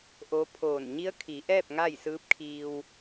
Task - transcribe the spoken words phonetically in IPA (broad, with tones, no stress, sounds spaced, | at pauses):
ʔ o˧˥ pʰ oː˧˩ n ɲ i˧˥ ə̯ kʰ i˩˧ ʔ ɛː˥˨ p̚ ŋ a˥˨ j s ɯː˧˥ p̚ kʰ iː˧ w